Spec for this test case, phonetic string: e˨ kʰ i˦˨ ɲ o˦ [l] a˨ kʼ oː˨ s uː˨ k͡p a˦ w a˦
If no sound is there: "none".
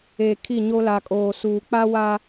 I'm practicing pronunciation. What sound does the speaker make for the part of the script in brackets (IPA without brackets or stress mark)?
l